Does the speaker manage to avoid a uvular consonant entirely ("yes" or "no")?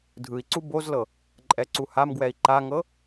yes